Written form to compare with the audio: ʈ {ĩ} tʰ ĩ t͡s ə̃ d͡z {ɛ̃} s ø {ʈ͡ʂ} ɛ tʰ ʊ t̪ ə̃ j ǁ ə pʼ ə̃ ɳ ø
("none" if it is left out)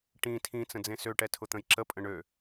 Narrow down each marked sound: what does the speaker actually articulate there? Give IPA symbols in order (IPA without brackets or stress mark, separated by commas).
ĩ, ẽ, ʈ